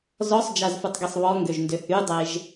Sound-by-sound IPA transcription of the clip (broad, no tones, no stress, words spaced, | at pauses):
zɔsˤd͡ʒazfutˤɡesˤ βɔŋɡøʒndø hydˤeʒ